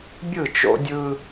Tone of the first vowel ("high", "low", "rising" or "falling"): falling